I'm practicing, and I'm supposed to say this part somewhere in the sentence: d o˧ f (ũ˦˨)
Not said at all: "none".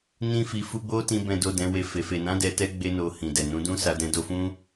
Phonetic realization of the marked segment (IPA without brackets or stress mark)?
ũ˦